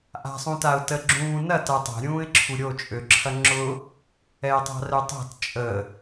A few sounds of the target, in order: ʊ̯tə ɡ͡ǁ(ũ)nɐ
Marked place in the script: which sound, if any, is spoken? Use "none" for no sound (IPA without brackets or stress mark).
ũː